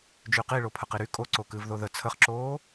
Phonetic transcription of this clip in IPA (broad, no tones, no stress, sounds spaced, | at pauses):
d͡ʒ y q i ɭ o pʰ ə q i ɾ y kʼ o ǀ o k ɨː v ð o ð ə t͡sʰ ə χ ǁ oː